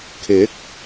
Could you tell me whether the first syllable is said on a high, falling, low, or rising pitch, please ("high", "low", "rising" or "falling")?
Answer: rising